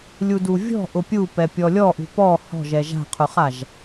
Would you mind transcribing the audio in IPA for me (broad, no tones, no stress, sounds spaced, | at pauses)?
lʲ u d u vʲ ɔ̤ ʔ ʊ pʲ u p ɛ pʲ ɔ lʲ ɔ ʔ ṳ p ɔ h ɔ̤ ʒ ɛ ʒ a̤ qʰ ʊ χ a ʒ